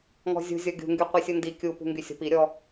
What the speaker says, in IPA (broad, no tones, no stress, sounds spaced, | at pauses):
ŋ ɔ̤ zʲ ṳ zʲ ɔ ɡʲ ṳ ŋ ɡ y qʷ i sʲ u n d i kʲ u p ṳ ŋ ɡ y sʲ ɔ̤ p i ɾʲ ɔ